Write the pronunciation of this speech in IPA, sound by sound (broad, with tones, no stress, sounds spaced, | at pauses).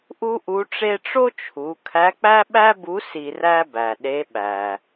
ʔ u˥ ʔ u˧˥ ʈ͡ʂ e˥ ʈ͡ʂ o˥ t͡ʃʰ u˩˧ kʰ æ˧˥ k͡p æ˥ ɓ æ˥ b u˧˥ s i˧ r æ˥ b æ˩ ɗ e˧˥ ɓ æ˩